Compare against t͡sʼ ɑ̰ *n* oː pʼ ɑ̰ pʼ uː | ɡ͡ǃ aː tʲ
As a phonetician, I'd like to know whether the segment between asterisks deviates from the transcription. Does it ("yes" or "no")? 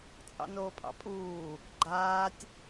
no